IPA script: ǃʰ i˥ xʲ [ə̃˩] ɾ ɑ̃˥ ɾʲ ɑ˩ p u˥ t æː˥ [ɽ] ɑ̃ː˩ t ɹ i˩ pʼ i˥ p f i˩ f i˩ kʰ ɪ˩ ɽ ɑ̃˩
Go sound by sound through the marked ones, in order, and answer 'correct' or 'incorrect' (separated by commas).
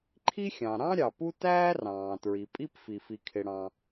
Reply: incorrect, incorrect